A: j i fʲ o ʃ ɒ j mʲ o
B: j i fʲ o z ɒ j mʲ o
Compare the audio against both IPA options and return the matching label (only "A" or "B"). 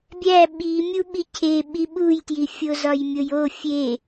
B